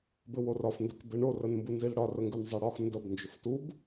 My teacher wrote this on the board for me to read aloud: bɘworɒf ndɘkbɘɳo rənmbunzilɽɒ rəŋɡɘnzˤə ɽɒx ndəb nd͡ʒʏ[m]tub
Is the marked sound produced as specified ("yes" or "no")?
no